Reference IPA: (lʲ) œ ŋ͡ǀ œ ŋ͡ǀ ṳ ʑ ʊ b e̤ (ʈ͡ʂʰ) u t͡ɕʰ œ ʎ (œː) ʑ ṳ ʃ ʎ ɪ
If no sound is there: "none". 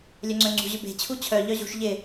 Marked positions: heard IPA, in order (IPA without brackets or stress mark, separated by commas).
lʲ, t͡ɕʰ, œ